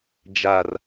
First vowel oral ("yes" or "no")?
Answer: yes